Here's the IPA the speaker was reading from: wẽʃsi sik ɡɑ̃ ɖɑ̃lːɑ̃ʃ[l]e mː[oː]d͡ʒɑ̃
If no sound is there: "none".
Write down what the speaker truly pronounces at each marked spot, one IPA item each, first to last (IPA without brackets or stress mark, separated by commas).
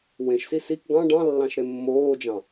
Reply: ɾ, oː